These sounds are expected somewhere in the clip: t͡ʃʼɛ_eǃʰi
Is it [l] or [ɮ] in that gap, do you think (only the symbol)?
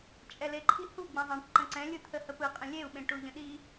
l